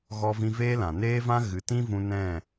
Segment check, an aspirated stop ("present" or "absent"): absent